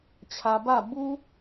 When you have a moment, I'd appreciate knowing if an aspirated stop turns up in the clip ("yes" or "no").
yes